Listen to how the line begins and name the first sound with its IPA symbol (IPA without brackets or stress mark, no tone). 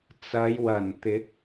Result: t͡s